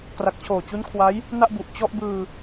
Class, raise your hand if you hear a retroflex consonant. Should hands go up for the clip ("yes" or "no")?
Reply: no